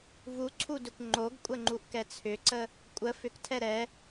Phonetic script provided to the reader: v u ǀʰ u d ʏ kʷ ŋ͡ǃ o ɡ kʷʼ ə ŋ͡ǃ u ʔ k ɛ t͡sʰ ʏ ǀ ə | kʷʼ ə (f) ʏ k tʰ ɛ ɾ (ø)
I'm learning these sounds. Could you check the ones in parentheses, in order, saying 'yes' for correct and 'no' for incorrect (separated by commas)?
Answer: yes, no